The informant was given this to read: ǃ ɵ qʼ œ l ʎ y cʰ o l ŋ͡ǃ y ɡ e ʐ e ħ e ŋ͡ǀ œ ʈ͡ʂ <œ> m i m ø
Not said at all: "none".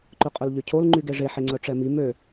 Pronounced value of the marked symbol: ɛ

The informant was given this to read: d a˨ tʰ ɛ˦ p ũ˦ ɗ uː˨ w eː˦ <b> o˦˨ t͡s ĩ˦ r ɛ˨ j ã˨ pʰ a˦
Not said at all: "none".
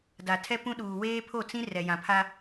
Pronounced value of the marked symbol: pʰ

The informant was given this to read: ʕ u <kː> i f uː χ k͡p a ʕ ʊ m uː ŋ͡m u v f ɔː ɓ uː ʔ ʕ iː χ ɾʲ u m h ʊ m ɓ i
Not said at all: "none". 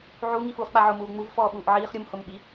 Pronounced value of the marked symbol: ŋ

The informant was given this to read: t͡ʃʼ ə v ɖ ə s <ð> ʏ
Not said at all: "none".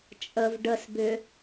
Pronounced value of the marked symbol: b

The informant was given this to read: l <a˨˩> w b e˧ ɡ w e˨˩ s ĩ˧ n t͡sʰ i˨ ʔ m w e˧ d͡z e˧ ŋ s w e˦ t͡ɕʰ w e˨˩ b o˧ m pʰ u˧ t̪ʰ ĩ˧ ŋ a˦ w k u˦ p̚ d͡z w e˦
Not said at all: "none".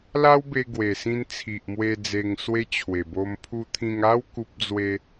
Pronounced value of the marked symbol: a˦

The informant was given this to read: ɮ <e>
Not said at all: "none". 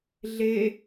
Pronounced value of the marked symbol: e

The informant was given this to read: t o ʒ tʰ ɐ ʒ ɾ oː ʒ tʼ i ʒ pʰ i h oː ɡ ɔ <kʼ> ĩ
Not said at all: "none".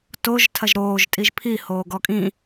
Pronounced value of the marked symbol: kʼ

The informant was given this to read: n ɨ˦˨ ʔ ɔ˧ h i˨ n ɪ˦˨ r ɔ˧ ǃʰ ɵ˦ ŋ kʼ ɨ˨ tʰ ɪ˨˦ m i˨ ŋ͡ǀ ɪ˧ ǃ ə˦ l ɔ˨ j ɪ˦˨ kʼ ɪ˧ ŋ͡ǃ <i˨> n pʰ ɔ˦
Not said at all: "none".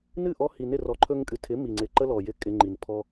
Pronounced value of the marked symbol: i˨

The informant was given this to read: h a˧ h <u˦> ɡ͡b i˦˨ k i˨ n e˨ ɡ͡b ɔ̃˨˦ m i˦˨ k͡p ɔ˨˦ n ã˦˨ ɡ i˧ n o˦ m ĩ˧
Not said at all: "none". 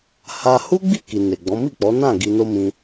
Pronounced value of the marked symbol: u˦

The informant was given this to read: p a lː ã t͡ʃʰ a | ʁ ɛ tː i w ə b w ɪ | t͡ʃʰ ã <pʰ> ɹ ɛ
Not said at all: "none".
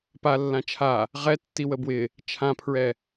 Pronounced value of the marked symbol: pʰ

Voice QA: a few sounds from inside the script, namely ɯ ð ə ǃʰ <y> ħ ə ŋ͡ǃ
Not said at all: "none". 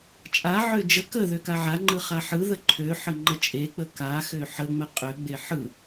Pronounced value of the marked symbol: ø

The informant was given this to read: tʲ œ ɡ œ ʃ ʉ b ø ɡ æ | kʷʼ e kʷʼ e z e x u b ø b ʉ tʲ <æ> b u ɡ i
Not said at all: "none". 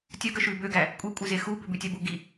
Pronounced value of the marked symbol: æ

